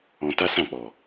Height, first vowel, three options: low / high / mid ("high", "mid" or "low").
mid